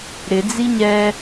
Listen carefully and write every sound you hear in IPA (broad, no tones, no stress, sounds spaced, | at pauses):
ɾ ɪ d͡z i ɲ ɛ